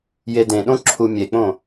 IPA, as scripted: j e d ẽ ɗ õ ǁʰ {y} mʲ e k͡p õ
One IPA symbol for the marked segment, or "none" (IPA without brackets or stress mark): u